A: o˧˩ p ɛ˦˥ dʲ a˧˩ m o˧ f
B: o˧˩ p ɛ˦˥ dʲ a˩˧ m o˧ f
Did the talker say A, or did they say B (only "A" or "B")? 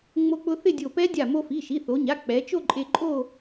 A